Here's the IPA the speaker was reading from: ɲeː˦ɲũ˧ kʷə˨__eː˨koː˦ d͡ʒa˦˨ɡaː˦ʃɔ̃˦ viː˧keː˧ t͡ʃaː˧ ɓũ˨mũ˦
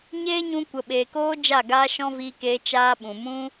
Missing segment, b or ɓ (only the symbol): ɓ